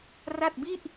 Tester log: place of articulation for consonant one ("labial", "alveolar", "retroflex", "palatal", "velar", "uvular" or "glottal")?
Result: alveolar